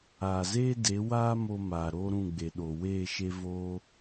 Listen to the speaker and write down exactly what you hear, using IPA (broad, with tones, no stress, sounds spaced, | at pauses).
aː˨ z eː˦ d e˨˦ w aː˦ m o˧ m aː˨ ɾ oː˦ ɾ ũ˦˨ ɡ͡b e˨ ɗ o˨ w eː˦˨ ʃ e˦ v oː˦